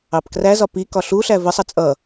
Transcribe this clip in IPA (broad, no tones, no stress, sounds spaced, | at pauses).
ɑ p k r æ z ɒ p i k ɒ ɬ u ɬ æ v ə sˤ ʌ t͡sʼ ʌ